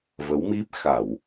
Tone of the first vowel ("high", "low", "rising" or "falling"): rising